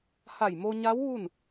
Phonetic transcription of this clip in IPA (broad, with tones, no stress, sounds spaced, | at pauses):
h a˧˩ j m o˧ ɲ a˧˥ w ʋ u˥˨ n